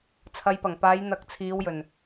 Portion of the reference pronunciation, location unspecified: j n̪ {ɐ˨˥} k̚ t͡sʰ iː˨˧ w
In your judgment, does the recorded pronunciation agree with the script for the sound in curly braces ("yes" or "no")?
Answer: yes